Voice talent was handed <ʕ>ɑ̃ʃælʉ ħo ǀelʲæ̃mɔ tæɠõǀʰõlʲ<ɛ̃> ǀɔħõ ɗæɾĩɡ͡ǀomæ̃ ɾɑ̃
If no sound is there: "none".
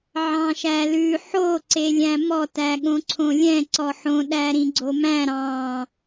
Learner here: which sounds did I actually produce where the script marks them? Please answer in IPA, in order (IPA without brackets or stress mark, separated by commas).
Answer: ʕ, ɛ̃